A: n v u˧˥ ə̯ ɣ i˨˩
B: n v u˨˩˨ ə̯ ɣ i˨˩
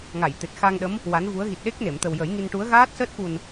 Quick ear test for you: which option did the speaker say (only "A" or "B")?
A